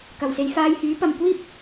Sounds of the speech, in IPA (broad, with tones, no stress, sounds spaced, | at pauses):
k ɐ˨˩ w s e˧ j f aː˧ j h yː˨˥ p ɐ˨ m kʷ iː˥ p̚